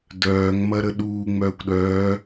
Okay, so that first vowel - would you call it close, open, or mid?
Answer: mid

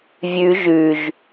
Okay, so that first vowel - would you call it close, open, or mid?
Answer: close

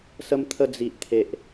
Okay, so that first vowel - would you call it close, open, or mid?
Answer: mid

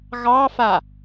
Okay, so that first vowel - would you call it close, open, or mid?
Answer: open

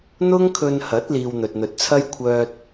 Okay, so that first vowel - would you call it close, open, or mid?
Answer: close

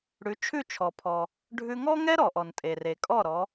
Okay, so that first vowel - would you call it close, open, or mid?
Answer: close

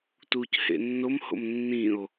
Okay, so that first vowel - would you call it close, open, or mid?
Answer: close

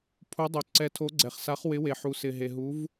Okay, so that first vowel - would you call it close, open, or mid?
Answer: close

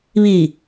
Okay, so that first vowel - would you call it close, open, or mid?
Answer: close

